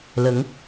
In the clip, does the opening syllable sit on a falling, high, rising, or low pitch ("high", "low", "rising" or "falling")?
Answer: rising